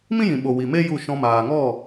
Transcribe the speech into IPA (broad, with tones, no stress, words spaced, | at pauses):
mĩ˦jĩ˨ ɓo˨wi˨me˦ ju˦˨ ʃɔ̃˧maː˨ ŋɔ˦˨